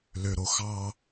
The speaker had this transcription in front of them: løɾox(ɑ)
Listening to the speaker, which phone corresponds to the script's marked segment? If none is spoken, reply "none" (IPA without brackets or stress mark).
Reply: ɑ